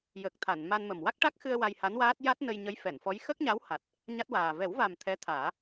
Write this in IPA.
j ə˨˩ k̚ t̪ʰ a˨˩˨ n m a˧ n m ə˨˩ m w a˦˥ k̚ ʈ a˦˥ k̚ x ɨ˧ ə̯ w a˧ j h a˧˥ n w aː˦˥ t̚ j a˦˥ t̚ n ə˧ j ɲ ə˧˥ j f ɛ˨˩˨ n f ɔ˧˥ j x ə˦˥ k̚ ɲ a˧˥ w h a˨˩ t̚ | ɲ a˦˥ t̚ w aː˨˩ v ɛ˨˩˦ w v a˨˩ m t̪ʰ ɛ˧˥ t̪ʰ aː˨˩˦

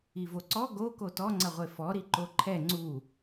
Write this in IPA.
i v o ǀ ɔ ɡ o k o t ɔ ŋ͡ǀ ɐ ʁʷ e f ɔ ɾ i ǃ o ǃʰ ɛ ŋ͡ǀ u

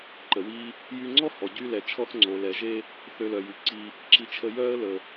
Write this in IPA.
ǃ ə˩ w i˧ | j y˧ ŋ͡ǀ ɔ˥ h ɔ˩ ɟ y˧ l ɛ˩ t͡ʃʰ ɔ˧ θ ŋ͡ǀ o˩ l ɛ˩ ʒ e˧ | θ ø˧ l œ˩ j y˩ ǀ i˧ | ǁ i˥ t͡ʃʰ ə˥ j œ˥ ə̯ l ə˩

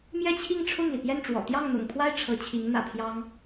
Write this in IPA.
m j ɛ˥˧ t͡ɕʰ i˥˧ ŋ ʈ͡ʂʰ ʊ˥˩ ŋ l i˩ p j ɛ˥˩ n ʈ͡ʂ w ɔ̰˨˩ t̪ j ɑ˥˩ ŋ n̪ ʊ̰˨˩ ŋ pʰ w a˥˩ ɪ̯ ʈ͡ʂʰ ɤ˧˥ t͡ɕʰ i˧˥ ŋ n̪ ä̰˨˩ pʰ j ɑ˥ ŋ

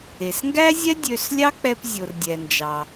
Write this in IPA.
e˩ s ŋ ɡ æ˥ zʲ ɛ˥ dʲ ø˧ s lʲ ɑ˥ k͡p ɛ˧ p zʲ o˩ r dʲ ɛ˩ n d͡ʒ ɑ˩

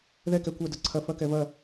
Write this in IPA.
ð ɛ k ɛ kʷ ɐ d ɐ ǀʰ ɐ f ɐ k ɛ v ɐ

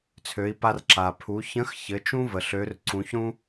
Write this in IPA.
t͡sʰ ø˩˧ i̯ p a˧ r ǁ a˩ pʰ u˩˧ ç ə̃˧˥ x ç ɘ˩˧ t͡ʃ ũ˥ v ə˩ ɬ ø˩˧ r ǀ ũ˩˧ ç ɾ ũ˥

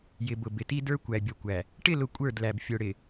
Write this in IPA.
j ɪ˨ b ʊ˨ b ɪ˨ t i˦ d ə˞˦ kʷ æ˨ bʲ ʌ˨ kʷ æ˨ | ʈ ɪ˦˨ l ʊ˨ kʷʼ ə˞˦˨ d l æ˨ b fʲ ʊ˨ ɽ ɪ˨

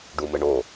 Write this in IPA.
ɖ u m ɘ ɳ o

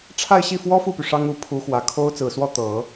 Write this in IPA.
ʈ͡ʂʰ a˥˧ ɪ̯ ɕ i˥˩ f w ɔ˥ f u˥˩ p y˩ ʂ ɑ˥ ŋ u˧˥ pʰ u˧˥ x w ä˨˩ kʰ o˥ ʊ̯ t͡s ɹ̩˨˩ s w ɔ˥˩ t̪ ɤ˨˩˦

